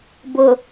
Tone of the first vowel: low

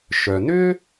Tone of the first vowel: low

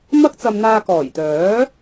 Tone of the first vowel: high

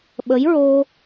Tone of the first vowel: rising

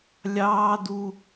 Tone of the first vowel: high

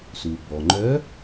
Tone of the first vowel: low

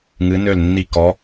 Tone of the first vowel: rising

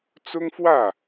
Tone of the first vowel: high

